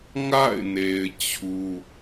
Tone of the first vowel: falling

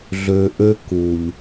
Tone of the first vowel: low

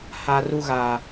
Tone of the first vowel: high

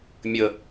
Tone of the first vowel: low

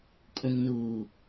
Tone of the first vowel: low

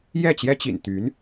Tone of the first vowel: falling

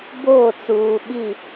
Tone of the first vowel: falling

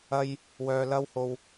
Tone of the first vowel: high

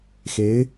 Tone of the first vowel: rising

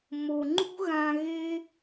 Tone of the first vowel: low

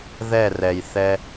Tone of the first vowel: falling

